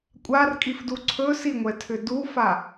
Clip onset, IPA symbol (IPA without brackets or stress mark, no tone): kʷʼ